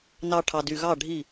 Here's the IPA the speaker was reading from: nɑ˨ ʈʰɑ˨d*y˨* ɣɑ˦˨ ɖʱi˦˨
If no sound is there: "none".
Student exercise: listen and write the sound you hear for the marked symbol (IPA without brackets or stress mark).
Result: y˨